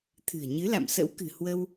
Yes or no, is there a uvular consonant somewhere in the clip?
no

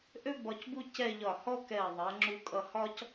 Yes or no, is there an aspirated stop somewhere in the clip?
no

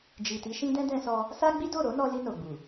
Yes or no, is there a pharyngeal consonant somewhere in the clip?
no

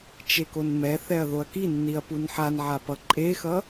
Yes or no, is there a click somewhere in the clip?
yes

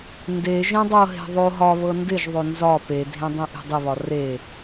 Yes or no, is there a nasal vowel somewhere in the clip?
yes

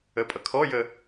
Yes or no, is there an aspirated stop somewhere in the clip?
yes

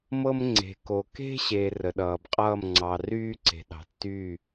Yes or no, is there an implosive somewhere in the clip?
yes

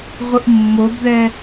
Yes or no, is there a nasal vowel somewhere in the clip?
no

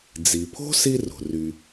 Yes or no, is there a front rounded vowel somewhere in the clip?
yes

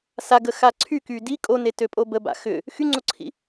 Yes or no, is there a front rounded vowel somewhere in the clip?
yes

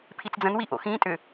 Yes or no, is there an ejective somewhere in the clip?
yes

